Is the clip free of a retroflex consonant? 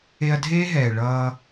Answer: no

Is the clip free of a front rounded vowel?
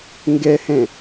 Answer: yes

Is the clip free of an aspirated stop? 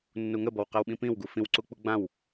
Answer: yes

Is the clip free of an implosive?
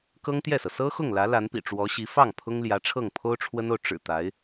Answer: yes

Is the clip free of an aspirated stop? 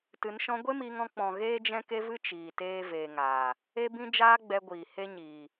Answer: yes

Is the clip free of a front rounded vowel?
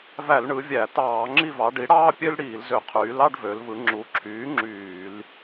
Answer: no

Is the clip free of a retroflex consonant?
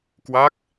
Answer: yes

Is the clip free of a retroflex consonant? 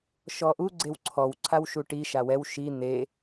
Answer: no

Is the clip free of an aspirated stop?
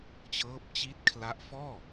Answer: no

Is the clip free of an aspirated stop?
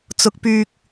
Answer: yes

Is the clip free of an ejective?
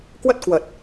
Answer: yes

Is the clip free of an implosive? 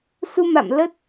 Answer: yes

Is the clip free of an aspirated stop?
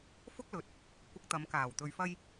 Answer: yes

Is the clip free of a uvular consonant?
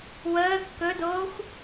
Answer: yes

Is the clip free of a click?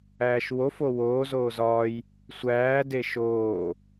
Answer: yes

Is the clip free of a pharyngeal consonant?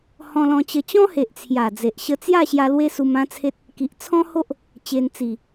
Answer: yes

